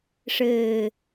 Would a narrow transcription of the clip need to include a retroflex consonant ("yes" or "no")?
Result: yes